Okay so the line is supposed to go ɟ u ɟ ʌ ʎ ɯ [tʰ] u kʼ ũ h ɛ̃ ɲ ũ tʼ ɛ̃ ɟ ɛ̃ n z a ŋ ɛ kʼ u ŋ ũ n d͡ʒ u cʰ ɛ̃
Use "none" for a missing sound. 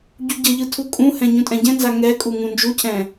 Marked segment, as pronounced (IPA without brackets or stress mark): tʰ